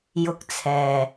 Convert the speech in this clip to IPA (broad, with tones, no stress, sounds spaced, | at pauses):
j ʊ˧ k̚ t͡sʰ ɛː˨